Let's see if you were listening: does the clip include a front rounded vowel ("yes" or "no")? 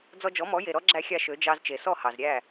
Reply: yes